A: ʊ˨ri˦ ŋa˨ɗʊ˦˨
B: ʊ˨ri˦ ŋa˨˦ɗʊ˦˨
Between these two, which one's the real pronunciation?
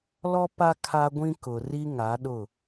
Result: B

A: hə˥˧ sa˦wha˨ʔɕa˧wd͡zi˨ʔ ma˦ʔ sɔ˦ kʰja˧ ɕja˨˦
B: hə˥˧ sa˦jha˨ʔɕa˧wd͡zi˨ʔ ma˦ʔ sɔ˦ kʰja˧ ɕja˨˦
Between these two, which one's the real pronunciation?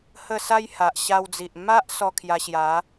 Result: B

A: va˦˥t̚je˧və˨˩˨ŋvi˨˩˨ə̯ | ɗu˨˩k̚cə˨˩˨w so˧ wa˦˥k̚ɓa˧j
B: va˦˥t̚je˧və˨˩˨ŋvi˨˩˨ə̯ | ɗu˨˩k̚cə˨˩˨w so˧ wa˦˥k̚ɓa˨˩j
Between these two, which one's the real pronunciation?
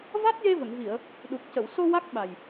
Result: B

